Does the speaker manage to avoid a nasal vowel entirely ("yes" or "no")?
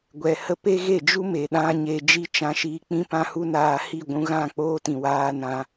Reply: no